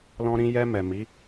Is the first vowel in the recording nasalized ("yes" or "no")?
yes